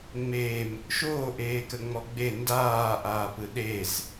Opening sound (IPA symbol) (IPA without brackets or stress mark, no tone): ŋ͡m